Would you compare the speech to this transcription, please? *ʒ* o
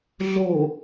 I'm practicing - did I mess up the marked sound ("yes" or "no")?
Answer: yes